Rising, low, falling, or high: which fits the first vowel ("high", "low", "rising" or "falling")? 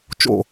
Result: falling